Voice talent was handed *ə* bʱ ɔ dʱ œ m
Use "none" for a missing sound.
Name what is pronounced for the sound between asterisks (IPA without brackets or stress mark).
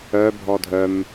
œ